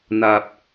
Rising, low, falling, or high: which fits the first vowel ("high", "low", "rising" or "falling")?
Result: low